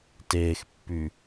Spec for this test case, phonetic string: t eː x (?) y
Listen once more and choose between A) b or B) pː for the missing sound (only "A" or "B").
B